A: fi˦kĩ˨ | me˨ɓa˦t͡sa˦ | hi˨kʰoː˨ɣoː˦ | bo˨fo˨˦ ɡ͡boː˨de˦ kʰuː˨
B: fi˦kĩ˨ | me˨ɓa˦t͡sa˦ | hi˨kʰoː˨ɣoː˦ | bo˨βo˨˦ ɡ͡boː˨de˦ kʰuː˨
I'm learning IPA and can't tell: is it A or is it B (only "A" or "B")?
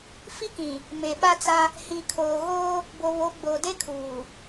B